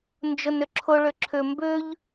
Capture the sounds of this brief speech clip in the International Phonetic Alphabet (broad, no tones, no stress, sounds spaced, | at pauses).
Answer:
n d͡ʒ ʊ n ʏ ǁʰ ʊ ɭ ʏ ǁʰ ʏ m b ʏ ʎ